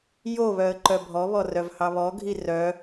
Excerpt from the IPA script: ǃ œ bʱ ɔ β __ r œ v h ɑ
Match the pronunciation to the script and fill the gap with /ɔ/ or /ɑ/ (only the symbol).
ɔ